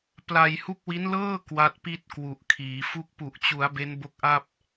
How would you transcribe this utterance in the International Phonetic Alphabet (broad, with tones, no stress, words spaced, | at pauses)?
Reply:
pla˧jhu˦˥k̚wi˦˥nlɤː˥˩ kwa˦˥t̚pi˥˩t̚ kwu˨˩ʔkʰiː˩˦fu˥˩k̚ pu˨˩ʔt͡ɕu˩˦a̯ be˦˥nbo˦˥k̚ʔa˥˩p̚